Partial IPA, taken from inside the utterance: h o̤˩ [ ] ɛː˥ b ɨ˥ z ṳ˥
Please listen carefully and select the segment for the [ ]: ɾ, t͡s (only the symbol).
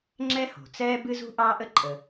t͡s